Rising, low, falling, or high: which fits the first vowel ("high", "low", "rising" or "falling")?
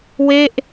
falling